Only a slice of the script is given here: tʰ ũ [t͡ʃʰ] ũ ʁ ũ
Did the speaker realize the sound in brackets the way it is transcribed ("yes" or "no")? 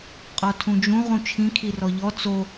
no